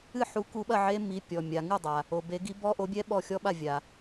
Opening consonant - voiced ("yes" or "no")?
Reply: no